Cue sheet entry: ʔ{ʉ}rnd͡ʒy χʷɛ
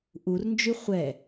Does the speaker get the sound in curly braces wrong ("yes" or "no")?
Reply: yes